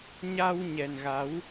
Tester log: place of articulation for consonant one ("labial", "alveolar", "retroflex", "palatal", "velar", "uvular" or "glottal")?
palatal